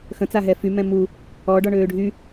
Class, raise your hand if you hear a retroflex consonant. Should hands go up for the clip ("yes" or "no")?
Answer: yes